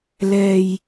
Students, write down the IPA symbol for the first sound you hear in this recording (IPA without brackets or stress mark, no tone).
l